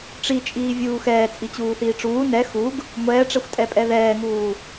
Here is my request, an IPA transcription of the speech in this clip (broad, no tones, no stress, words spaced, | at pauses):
ʈ͡ʂit͡ʃʼiː vʲuːxɛː t͡sʼit͡ɕuːθiːʈ͡ʂuː nɛ xuɡ | ŋʷɛːʈ͡ʂɛxʷtʼɛpʼɛ ðɛːŋuː